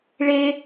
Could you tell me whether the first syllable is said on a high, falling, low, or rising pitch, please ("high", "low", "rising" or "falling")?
high